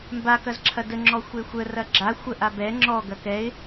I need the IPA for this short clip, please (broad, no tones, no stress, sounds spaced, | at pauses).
m b a k ɐ z ǁʰ ɐ d ə ŋ͡ǁ ɔ xʷ e xʷ ə r ɐ ɡ͡ǁ a xʷ ə ʔ a b ɛ ŋ͡ǁ ɔ ɡ ɐ k ɛ ɪ̯